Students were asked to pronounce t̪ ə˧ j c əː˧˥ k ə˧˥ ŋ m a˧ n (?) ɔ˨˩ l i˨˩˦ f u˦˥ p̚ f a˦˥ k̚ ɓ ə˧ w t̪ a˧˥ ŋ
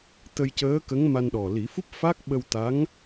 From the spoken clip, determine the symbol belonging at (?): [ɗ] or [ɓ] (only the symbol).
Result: ɗ